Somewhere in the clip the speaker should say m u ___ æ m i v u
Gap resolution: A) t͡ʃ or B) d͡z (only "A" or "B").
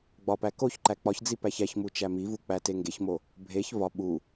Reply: A